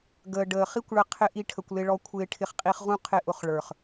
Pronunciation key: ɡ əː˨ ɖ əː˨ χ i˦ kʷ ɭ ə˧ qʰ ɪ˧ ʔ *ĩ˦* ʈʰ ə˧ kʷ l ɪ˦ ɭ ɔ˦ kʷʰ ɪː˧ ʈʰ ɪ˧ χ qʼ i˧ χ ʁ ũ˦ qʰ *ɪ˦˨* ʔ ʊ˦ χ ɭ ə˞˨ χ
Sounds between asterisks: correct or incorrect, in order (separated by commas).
incorrect, correct